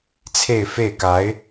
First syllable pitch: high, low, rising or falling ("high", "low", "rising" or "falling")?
falling